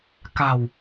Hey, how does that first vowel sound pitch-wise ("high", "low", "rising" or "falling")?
low